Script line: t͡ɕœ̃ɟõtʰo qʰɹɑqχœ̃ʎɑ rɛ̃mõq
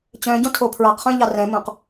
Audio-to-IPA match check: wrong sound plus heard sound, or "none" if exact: qʰ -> pʰ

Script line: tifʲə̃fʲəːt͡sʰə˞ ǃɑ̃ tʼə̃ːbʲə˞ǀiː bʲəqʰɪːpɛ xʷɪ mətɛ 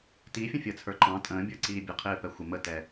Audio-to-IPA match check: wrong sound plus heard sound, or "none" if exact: none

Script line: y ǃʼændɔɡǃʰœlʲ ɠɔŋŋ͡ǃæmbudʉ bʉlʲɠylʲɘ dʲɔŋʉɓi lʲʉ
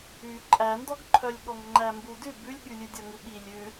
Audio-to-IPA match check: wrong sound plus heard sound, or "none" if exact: ɘ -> ʉ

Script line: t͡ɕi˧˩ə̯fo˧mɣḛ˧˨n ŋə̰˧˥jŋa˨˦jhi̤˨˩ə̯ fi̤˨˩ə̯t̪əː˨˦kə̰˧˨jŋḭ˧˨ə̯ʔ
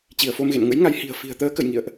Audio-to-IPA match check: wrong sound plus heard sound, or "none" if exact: none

